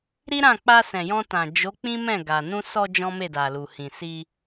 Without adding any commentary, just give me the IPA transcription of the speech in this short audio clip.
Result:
ɾi˦ɾã˦˨ k͡pa˧sɛ̃˨jɔ̃˧tã˨ d͡ʒo˨˦ k͡pĩ˦mɛ̃˦˨ ɡa˨ nũ˧sɔ˧ d͡ʒɔ̃˦me˦˨da˨lu˨ hĩ˨si˧

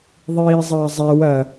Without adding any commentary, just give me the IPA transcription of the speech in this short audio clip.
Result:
ðˤiːzˤɐːzˤɛw ɐ

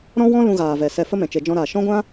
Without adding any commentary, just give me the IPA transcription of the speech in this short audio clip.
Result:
ɾɔ̃˦wɔ̃˦ lũ˧ɣaː˨vɛ˨ sɛ˧fə˦mɛ̃˨ t͡ʃe˨d͡ʒɔ̃˧ɾaː˨ ʃɔ̃˦ɡʷã˦

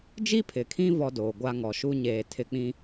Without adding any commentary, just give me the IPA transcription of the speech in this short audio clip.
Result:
d͡ʒi˦pʰɪ˨kʰĩ˦ vɔ˦doː˨ɡʷa˦ŋɔ˨ ʃu˦ɲeː˨ tʰɪ˨k͡pĩ˨

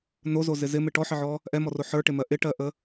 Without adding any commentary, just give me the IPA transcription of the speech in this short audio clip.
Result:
nozozɪ zɪmɪ ʈɔħɪʕɔ | ʔɛmɔro ħə˞ʈɪmɜ ʔɪʈɜʔə

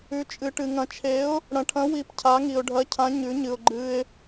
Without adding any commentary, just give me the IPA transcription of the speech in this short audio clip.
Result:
ʉ˧˥t͡ʃʼɨ˧ʈɨ˧ ŋɐ̃˧t͡ʃʰe˧˥ʊ̯ | ɽɐ̃˧ʈʰɐ̃˧˥ wi˧˥pcʰa˧˥ŋi˧ʊ̯ ɖʱɐ˧˥cʰã˧˥ ɲʉ˧˥ɲɨ˧ʊ̯ ɡ͡ǃɨ˧ɪ̯

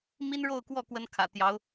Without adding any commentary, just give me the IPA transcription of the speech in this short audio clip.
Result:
mi˥nɻo˥˧ʊ̯kwɔ˥˩ kwə˥nkʰä̰˨˩t̪jɑ˧˥ʊ̯

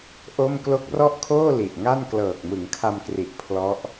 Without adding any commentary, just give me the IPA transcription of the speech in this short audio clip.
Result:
ʔo˥˩m klo˦˥k̚rɔ˥˩ʔkʰoː˥˩ li˨˩ʔŋa˥˩n klɤː˨˩k̚mɯ˩˦ŋkʰa˧mkri˨˩ʔ pʰlɔ˦˥ʔ

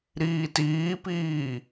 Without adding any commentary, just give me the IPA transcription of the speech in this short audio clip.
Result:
ɾiːtiːpiː

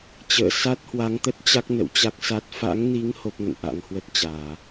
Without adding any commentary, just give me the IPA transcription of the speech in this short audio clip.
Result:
t͡ɕə̰ː˧˨ sa˦˥t̚hwa˨˦ŋt̪ə˦˥t̚t͡ɕa˦˥k̚ nə̰˧˨wt͡ɕa˦˥k̚sa˦˥t̚ fa̰˧˥ŋni˨˦ŋ ho˦˥p̚ŋə̰˧˨nʔa̰˧˥ŋhwə˦˥t̚ t͡ɕaː˧˩˨

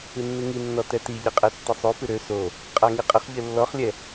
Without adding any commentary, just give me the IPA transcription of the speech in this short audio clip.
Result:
ɨnːɨŋinːɔ tɛtiʎɘqʼɛ tːisˤofɨ ɾø so | qʼaŋiqʼəχ ʎɘlːɔχlʲɛ

